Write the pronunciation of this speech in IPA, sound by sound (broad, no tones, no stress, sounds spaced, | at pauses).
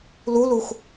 l u l u x